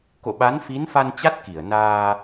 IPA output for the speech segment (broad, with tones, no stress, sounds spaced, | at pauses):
k o̰˧˨ ɓ a˨˦ n f i˨˦ n f a˧ n t͡ɕ a˦˥ t̚ k i˧˩ ə̯ n aː˧